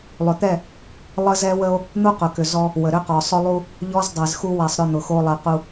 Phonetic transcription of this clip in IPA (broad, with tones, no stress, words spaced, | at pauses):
lˠʏ˨t̪ɛ˦˨ | lˠə˦zɛ˦wə˦o̯ | n̪u˦qʊ˨kʏ˨ zɔ˦ | wə˨ɾʏ˦qɔ˨ sˤʊ˦lˠu˦ | ʎɔ˦zdˤɛ˨z xu˦wɛ˨sˤɾʏ˦˨ n̪ʊ˨xo˦lˠɛ˨ qu˨